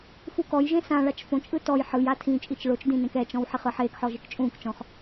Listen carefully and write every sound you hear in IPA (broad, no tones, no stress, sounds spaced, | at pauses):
f u k ɔ j ʒ ẽ s ã ɭ a t͡ʃ f õ t͡ʃʼ ɯ t ɔ j ħ ɯ j a tʰ ĩ t͡ʃʼ i t͡ʃ ɭ o t͡ʃ d ĩ n ẽ k ɛ t͡ʃ ɔ̃ w ħ i χ ɯ ħ eː k ħ ɔ ʒ e k t͡ʃʼ ũː k t͡ʃ ɔ̃ χ